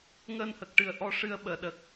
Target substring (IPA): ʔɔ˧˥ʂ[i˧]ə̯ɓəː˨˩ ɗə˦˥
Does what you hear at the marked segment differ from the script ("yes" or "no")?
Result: yes